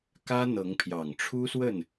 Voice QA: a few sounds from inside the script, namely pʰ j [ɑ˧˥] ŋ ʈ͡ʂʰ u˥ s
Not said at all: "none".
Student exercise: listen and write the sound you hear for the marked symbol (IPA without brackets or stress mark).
ɑ˨˩